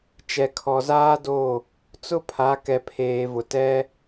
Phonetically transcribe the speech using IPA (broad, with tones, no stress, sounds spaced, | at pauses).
t͡ʃ ɛ˨ kʰ ɔ˨ z aː˦ d o˦˨ | t͡s ʊ˦ pʰ a˨˦ k ɛ˨ pʰ eː˨ v ʊ˨ t ɛ˦